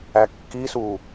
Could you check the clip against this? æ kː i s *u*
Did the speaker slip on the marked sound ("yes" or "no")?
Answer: no